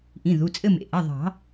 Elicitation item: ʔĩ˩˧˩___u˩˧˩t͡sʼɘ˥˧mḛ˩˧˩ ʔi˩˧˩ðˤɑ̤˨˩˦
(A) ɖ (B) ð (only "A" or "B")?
B